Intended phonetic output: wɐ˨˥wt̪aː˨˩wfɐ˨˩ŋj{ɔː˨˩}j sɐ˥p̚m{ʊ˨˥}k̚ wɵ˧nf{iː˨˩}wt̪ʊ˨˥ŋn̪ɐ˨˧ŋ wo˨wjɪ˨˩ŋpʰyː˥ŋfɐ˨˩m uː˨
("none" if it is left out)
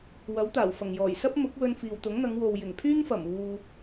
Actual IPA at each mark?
ɔː˨˩, ʊ˨˥, iː˨

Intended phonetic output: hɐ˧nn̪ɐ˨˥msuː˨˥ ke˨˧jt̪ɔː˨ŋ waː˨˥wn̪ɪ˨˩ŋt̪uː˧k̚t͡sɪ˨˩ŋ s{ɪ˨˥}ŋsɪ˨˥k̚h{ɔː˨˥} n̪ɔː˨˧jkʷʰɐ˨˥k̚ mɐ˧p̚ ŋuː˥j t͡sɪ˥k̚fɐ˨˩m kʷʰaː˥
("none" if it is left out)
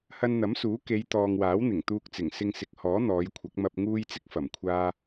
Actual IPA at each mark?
ɪ˧, ɔː˨˥

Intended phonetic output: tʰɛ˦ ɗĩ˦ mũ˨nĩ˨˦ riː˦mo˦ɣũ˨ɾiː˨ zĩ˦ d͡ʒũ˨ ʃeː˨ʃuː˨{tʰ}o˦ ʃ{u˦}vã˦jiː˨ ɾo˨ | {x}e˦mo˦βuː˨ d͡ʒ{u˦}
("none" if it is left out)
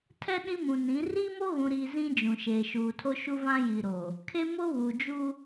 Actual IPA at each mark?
tʰ, u˦, kʰ, u˦

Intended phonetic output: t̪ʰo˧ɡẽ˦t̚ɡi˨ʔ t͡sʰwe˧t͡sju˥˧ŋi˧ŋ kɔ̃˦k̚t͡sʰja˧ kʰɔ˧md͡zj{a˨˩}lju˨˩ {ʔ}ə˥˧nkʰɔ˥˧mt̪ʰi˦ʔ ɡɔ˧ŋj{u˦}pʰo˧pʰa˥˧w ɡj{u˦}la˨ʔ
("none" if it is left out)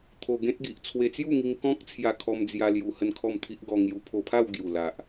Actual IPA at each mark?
a˧, h, u˧, u˨˩

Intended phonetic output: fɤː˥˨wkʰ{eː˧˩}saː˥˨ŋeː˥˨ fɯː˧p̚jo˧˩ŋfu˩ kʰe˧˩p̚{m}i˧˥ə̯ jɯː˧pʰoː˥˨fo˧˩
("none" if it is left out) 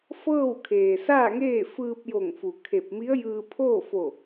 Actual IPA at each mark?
eː˩, m

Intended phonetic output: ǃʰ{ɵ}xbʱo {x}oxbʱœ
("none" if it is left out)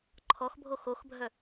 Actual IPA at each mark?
ɔ, x

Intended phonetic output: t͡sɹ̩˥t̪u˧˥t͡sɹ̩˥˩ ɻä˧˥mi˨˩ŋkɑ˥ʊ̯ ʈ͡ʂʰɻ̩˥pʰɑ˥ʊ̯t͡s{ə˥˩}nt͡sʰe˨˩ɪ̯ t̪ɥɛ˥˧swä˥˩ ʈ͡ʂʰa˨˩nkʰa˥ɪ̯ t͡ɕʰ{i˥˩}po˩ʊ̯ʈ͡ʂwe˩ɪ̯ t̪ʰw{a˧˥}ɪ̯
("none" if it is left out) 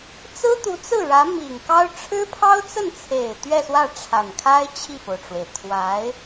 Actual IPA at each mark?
ə˥˩, i˥˩, a˧˥

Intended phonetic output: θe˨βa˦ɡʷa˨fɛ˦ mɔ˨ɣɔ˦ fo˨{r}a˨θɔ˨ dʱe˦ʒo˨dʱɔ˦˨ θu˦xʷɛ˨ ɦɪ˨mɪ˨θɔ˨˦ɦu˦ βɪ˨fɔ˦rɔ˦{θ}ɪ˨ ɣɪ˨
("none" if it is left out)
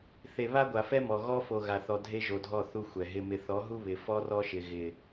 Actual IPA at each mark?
ɣ, ʃ

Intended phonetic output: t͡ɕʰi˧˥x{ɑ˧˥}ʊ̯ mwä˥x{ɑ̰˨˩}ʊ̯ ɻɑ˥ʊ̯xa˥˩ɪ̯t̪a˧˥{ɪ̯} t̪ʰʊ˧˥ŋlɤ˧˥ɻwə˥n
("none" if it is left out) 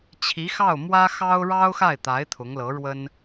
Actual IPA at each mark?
ɑ˥˩, ɑ˥, ɪ̯

